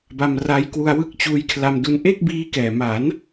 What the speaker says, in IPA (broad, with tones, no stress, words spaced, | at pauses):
ba˧mra˦˥jkwu˧a̯ wɯ˥˩k̚t͡ɕuː˦˥jkʰla˧mdu˧n ʔe˥˩k̚biː˦˥kɛː˨˩ ma˩˦n